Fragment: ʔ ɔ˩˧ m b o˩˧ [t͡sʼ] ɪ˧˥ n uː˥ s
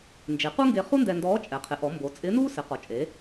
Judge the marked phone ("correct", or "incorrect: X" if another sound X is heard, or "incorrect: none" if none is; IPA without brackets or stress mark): correct